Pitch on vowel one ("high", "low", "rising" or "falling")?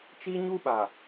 high